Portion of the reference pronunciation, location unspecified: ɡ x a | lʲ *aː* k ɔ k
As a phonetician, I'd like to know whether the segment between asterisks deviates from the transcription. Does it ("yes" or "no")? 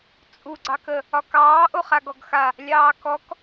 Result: yes